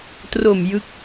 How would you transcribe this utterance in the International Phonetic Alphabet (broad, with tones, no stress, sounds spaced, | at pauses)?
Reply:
t r o˨˩ m j ɯ˦˥ k̚